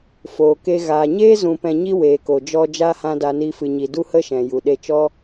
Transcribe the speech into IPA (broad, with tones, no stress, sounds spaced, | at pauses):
f oː˨ k e˧ ɣ aː˨ ɲ eː˦ z ũ˧ p ɛ̃˧ ɲ i˦ w eː˨ k o˨ d͡ʒ ɔ˧ d͡ʒ aː˦ h ã˦ d a˧ n iː˦ f ɨ˧ ɲ i˧ d u˦ h ə˦ ʃ ɛ̃˨ j u˨ ɗ e˧ t͡ʃ ɔ˦